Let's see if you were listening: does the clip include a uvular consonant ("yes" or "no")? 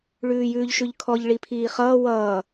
yes